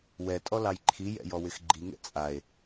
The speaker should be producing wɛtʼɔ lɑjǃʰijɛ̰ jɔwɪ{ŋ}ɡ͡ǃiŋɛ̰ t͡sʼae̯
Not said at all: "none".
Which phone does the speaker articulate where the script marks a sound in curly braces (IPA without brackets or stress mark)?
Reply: x